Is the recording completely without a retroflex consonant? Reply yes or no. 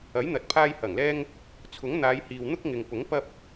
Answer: yes